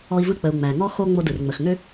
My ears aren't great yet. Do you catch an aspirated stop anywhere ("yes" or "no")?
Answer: no